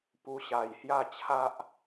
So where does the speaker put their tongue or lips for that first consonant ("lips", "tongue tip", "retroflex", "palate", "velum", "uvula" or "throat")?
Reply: lips